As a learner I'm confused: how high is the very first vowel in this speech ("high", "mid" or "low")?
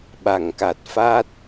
low